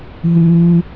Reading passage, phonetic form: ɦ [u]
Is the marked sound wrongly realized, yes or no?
yes